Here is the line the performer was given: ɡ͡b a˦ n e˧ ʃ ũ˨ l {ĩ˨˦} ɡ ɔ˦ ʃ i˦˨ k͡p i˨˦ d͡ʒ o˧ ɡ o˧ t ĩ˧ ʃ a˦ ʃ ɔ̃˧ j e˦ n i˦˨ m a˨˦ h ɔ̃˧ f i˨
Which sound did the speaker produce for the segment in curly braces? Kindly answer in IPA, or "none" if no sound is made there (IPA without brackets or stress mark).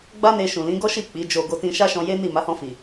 ĩ˨˦